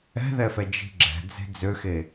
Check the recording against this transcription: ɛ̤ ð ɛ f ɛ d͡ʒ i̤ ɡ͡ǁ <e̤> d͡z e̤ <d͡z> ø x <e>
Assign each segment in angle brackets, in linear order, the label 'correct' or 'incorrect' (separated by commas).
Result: incorrect, correct, correct